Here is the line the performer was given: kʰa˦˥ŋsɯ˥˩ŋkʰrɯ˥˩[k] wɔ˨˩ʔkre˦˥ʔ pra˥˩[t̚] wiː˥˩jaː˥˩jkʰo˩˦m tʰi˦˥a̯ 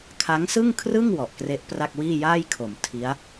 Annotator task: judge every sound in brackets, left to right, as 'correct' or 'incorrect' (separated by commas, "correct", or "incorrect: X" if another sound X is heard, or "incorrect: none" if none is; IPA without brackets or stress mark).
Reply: incorrect: ŋ, incorrect: k̚